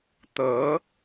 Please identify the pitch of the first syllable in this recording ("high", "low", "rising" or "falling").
rising